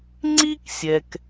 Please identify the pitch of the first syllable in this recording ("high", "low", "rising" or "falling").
high